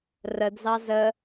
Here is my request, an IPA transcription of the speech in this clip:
rədzɑ zə

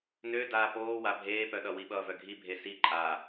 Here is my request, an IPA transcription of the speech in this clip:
nø daːpoː wabʱeːpœɗʌ wiɓʌːvœɡʱi bʱesi ǃʼa

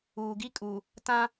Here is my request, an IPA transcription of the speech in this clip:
uː˨ɡi˦kʼu˨ | tã˦

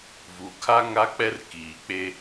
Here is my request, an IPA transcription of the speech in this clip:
vu˨kʰa˦ ŋa˦k͡pɛ˦rkiː˨k͡pe˦

